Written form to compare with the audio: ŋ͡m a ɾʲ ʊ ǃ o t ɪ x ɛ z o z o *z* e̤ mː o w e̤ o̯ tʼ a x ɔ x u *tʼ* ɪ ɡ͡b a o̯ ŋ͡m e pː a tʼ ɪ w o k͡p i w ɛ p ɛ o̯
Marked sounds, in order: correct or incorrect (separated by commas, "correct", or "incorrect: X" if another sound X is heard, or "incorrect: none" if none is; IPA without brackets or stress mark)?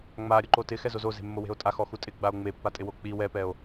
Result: correct, correct